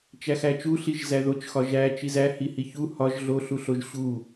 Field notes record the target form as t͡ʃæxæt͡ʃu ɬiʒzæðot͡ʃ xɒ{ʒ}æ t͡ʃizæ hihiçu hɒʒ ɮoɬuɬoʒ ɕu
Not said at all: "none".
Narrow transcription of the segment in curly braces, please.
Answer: ʒ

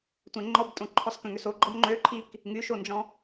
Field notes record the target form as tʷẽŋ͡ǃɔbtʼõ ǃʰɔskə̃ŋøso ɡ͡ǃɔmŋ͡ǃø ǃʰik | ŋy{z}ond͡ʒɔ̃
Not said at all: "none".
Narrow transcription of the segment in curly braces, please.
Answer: ʃ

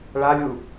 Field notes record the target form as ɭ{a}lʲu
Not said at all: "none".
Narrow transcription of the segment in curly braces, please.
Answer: a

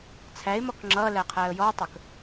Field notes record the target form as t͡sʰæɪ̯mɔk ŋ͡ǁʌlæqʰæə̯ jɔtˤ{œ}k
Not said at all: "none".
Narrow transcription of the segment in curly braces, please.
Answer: ə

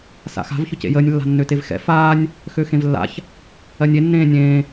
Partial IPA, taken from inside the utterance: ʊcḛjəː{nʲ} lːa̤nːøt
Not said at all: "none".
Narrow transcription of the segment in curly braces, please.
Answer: nʲ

